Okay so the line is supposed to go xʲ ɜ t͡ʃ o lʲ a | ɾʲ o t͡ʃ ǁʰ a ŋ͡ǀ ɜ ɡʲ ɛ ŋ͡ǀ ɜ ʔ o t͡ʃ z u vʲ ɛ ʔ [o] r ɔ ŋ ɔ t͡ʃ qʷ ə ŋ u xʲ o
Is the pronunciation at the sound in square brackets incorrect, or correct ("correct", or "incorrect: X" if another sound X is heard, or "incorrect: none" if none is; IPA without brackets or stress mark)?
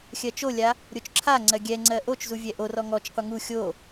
correct